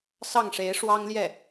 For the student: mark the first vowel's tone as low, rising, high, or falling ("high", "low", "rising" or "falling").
falling